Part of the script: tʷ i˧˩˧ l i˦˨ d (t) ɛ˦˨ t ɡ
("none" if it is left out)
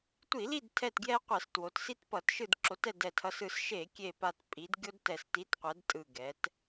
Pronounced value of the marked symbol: tʰ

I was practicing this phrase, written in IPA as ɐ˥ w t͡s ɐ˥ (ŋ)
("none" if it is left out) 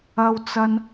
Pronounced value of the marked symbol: n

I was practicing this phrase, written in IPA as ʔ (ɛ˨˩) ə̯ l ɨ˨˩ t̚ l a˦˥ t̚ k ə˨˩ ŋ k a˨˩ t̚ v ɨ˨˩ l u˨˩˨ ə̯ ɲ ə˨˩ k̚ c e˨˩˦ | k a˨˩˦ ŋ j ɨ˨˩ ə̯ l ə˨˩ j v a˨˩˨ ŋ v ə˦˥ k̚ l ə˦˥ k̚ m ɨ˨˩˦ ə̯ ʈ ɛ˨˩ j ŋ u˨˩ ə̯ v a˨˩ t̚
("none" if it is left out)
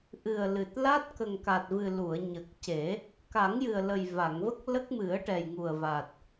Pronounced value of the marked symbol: ɨ˨˩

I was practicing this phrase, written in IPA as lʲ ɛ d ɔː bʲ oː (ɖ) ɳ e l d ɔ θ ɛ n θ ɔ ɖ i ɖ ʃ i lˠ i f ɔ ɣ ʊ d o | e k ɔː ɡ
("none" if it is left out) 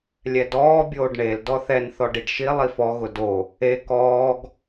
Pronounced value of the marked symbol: ɖ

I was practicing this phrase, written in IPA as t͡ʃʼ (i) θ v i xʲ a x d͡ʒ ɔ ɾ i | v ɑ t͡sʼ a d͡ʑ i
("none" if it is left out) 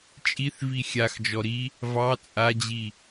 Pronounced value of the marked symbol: i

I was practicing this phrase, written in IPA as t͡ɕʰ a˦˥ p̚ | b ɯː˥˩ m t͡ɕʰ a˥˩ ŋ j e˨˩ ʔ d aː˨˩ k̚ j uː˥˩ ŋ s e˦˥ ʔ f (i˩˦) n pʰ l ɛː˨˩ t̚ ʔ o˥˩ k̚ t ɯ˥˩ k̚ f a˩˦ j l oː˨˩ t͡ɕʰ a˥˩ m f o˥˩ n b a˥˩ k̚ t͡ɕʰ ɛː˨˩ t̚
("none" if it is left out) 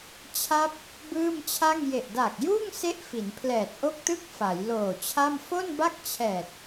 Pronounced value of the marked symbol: i˩˦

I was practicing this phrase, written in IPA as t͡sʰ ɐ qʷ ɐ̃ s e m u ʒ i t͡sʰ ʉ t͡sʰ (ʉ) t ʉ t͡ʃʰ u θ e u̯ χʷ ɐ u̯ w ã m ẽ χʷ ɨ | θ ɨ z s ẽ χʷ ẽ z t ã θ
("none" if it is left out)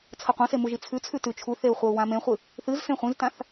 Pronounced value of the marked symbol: ʉ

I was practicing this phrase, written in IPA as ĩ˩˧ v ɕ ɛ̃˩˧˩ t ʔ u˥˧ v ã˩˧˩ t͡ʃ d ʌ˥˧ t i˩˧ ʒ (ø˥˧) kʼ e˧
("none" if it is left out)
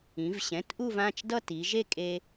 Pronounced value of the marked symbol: e˥˧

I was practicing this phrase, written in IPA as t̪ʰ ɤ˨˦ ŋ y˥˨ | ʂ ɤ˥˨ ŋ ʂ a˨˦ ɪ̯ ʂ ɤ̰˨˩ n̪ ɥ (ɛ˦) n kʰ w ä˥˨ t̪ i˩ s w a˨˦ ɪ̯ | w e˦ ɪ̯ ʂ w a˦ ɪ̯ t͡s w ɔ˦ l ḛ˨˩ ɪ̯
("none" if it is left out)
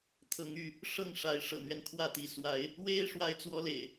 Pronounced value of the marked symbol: ɛ˦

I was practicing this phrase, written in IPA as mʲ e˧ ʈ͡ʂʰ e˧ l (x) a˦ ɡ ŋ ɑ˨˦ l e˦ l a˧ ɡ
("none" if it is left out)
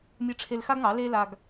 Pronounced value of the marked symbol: x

